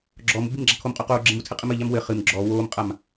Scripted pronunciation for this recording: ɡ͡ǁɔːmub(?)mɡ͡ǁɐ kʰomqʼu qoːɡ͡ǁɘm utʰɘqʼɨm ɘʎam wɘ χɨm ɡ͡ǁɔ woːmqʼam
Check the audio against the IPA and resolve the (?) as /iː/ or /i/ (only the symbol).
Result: i